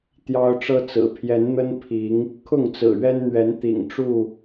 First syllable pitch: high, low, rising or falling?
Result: high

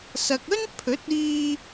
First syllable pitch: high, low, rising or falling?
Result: low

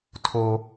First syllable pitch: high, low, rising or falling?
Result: high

